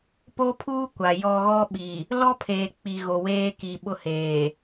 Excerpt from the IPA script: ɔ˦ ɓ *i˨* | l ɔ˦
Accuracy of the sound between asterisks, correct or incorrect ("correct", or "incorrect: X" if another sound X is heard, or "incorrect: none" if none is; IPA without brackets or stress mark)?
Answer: correct